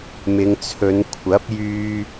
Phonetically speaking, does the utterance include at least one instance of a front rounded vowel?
yes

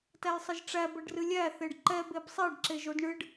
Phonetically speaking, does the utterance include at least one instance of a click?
yes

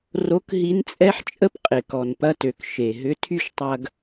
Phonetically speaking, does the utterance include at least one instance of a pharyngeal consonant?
yes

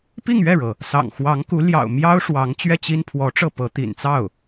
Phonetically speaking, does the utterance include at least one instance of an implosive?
no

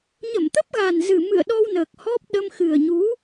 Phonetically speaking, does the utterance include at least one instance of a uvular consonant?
no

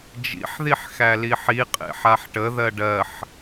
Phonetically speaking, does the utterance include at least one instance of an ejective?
yes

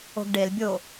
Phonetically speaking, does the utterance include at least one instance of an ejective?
no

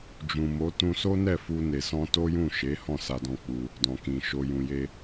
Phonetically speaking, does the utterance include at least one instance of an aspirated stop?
no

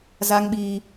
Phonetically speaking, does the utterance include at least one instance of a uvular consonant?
no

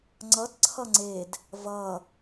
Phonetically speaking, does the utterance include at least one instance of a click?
yes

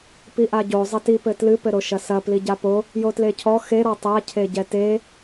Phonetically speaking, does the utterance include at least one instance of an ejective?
no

